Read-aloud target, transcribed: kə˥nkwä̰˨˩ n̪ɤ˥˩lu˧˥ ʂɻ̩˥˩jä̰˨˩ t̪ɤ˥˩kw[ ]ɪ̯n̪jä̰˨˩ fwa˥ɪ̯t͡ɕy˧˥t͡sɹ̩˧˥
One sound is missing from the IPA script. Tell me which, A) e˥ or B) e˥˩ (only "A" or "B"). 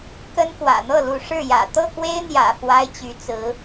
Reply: A